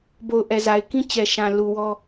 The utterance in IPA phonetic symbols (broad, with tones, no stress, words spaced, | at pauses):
bo˨ʊ̯ʔɛ˨za˨ɪ̯kĩ˦ t͡ɕɛ˨ʃã˨ lu˨ wɔ˦